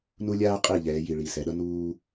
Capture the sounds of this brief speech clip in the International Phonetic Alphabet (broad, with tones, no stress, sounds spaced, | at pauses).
n u˦ lʲ aː˦ qʼ i˦˨ ʎ ɛː˨˦ j i˨ ɭ i˨ s ɛ˨ ɗ ʌ˦ n uː˦